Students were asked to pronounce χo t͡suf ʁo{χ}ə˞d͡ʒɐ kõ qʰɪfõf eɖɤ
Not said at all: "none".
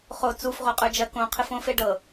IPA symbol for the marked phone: qʼ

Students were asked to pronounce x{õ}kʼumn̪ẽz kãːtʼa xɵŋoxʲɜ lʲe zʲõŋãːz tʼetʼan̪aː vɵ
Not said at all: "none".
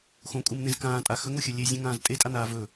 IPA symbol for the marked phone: õ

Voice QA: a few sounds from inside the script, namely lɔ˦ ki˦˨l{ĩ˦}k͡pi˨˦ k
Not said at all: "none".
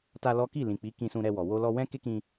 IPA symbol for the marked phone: ĩ˨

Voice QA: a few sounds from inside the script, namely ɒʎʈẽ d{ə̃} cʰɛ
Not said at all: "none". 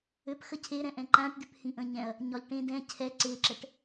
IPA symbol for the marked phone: ɛ̃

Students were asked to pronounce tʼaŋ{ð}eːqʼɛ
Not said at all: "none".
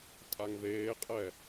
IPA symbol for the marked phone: ð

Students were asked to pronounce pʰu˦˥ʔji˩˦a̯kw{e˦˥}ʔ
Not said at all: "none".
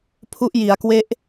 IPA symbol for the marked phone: e˦˥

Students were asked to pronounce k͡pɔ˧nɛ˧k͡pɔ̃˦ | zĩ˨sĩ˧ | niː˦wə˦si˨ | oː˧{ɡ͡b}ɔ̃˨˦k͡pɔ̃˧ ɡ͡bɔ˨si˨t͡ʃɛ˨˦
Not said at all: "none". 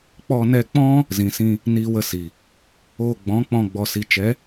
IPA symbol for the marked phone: ɡ͡b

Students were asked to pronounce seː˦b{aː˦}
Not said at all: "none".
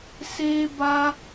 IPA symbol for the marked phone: aː˦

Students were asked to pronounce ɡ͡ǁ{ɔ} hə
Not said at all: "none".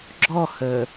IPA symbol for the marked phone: ɔ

